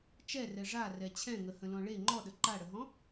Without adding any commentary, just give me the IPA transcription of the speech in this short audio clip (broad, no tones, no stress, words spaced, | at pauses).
t͡ʃɛrɛ ʐarɛ t͡ɕʰɛ̃ŋəhə̃lɔ̃ ɭe ŋ͡ǃɔɗə ǃaɽəɦɔ̃